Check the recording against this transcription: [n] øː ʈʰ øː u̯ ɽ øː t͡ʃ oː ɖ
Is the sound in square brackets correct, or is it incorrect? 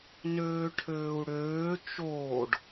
correct